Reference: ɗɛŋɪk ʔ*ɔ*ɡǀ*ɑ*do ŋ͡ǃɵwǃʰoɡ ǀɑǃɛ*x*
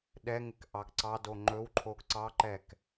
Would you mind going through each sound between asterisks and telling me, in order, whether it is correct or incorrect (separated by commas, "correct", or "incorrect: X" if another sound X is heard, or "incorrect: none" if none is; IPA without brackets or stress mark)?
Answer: incorrect: ɑ, correct, incorrect: k